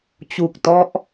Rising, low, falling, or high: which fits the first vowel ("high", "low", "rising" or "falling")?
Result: low